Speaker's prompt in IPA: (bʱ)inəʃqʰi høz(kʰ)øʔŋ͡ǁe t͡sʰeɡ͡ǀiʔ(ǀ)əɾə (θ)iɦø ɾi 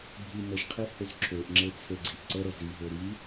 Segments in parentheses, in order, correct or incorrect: correct, incorrect: ǁʰ, correct, incorrect: z

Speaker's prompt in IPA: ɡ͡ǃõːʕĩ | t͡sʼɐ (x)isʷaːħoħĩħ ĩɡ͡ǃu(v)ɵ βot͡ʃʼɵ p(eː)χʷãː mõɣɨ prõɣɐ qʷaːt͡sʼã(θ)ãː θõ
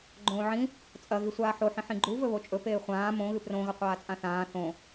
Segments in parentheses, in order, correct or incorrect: incorrect: ɣ, correct, correct, correct

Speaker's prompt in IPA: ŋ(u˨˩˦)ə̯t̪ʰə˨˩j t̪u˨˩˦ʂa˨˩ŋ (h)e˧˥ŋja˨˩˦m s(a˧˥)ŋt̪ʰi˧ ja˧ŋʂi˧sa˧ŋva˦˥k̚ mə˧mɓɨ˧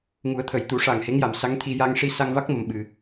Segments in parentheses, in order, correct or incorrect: correct, correct, correct

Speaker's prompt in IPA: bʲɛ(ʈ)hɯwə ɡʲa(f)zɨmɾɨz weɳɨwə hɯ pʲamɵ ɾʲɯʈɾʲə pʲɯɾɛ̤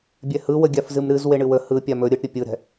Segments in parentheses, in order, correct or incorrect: incorrect: none, correct

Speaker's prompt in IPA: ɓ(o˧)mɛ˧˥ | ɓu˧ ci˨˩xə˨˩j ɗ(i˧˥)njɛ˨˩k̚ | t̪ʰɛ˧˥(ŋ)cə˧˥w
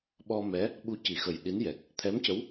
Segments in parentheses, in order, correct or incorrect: incorrect: ɔ˧, correct, incorrect: m

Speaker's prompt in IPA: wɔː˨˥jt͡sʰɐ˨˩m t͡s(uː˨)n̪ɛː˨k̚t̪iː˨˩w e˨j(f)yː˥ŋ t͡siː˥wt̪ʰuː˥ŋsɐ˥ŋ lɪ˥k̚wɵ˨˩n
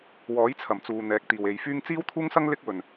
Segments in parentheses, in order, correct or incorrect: correct, correct

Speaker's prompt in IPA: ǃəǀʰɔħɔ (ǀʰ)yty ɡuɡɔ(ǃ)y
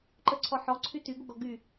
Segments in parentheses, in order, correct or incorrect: correct, incorrect: ɡ

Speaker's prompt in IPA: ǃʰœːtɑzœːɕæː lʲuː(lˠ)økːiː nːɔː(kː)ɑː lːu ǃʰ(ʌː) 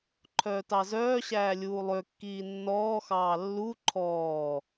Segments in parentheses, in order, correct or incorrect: correct, incorrect: x, incorrect: ɔː

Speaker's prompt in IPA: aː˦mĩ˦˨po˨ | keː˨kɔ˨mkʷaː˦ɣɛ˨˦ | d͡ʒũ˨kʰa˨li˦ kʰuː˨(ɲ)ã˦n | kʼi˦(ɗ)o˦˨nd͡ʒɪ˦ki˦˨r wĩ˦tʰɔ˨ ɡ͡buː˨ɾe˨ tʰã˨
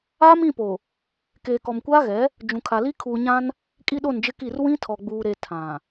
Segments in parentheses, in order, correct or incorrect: correct, correct

